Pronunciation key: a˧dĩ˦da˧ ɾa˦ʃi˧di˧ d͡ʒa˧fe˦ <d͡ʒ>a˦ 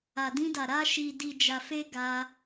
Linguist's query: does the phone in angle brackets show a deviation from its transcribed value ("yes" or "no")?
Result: yes